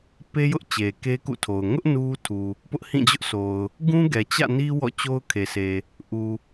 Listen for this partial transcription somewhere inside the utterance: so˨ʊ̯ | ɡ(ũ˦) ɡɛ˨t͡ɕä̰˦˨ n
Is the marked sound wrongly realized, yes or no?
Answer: no